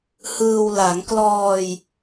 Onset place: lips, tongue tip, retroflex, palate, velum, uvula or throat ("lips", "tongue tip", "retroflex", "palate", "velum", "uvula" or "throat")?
throat